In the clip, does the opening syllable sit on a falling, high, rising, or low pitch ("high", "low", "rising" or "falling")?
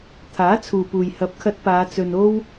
rising